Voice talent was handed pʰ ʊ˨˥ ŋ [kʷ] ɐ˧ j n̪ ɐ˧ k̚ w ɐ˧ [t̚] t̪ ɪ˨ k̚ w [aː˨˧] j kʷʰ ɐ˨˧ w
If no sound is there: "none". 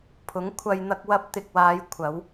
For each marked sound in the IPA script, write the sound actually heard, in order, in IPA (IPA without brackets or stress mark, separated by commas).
kʷʰ, p̚, aː˨˧